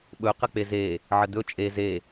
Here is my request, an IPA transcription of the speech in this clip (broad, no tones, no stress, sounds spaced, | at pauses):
ɓ ɵ q ə k͡p e z e | ʕ ə d̪ ɵ t͡ʃʼ e z e